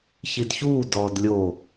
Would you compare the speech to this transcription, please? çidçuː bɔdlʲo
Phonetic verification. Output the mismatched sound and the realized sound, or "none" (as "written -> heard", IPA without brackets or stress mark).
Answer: b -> d